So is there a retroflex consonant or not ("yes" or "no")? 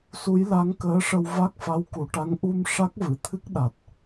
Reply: yes